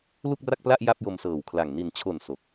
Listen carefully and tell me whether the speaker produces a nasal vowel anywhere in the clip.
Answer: no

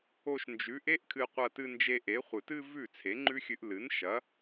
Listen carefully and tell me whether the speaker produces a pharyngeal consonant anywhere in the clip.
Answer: no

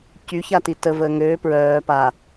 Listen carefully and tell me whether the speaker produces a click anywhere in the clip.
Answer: no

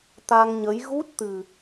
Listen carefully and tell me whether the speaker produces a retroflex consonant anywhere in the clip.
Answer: no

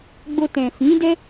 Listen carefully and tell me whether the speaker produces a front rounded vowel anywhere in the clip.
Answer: no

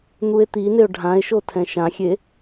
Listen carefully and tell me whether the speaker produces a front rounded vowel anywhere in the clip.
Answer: no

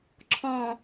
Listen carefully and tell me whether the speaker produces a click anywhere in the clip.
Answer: yes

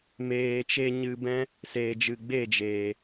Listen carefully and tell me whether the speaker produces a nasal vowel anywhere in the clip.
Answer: yes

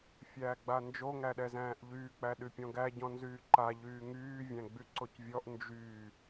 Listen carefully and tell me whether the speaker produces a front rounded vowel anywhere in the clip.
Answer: yes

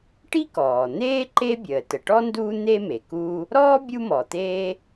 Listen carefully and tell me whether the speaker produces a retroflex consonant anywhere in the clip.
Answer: yes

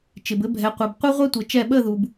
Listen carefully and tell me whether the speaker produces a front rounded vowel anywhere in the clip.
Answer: no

